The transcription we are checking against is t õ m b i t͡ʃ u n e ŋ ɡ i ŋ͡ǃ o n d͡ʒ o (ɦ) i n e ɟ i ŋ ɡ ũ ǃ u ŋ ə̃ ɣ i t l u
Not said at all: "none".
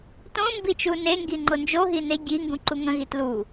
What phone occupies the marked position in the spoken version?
ɦ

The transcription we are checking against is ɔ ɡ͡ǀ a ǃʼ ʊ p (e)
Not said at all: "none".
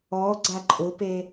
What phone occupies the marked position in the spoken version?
e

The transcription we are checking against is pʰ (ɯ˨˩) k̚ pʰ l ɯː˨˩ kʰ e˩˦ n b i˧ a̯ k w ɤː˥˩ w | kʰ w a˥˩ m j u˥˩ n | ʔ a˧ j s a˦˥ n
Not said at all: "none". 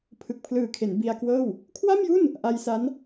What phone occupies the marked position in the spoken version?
ɯ˨˩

